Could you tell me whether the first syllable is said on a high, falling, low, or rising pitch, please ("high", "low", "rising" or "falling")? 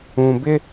low